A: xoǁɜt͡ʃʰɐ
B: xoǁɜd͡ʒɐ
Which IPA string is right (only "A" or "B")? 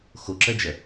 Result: B